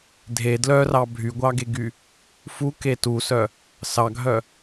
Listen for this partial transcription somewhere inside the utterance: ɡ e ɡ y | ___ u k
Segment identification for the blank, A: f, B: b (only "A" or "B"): A